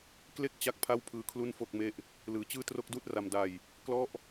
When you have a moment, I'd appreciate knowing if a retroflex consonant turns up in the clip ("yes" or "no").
no